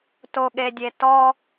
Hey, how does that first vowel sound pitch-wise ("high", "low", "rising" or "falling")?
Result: low